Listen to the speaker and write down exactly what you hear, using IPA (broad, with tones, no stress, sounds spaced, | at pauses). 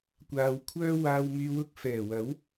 kʷ aː˨ w kʷʰ œː˥ w aː˨ w m yː˨ w ʊ˧ k̚ f ɛː˨˩ w ɐ˨˥ w